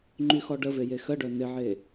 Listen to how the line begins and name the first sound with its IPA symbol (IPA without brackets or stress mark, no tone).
ŋ͡ǃ